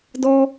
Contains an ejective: no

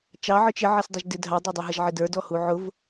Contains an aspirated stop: no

